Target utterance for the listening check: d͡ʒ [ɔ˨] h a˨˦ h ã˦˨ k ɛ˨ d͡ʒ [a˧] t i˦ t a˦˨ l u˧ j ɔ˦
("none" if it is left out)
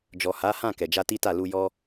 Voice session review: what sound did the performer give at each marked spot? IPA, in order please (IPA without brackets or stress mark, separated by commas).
ɔ˨, a˧